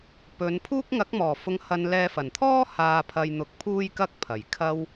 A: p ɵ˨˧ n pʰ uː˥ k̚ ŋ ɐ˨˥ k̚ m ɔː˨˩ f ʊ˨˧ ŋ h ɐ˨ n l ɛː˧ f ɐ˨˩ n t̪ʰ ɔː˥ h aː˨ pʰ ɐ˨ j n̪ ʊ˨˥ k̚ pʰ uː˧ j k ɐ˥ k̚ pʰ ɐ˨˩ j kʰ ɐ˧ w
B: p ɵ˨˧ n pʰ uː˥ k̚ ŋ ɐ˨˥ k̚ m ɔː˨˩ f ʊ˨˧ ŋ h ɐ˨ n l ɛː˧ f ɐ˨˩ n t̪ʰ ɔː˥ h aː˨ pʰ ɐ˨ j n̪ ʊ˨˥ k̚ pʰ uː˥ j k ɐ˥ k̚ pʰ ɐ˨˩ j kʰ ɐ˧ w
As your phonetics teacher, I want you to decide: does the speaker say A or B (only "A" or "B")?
B